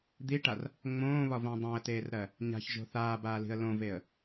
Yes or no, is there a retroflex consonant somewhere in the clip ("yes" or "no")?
yes